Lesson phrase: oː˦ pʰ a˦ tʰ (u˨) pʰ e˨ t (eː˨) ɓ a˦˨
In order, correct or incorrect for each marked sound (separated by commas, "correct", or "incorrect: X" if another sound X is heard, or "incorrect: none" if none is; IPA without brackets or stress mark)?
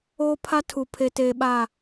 correct, correct